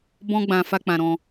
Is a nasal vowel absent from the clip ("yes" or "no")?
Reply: no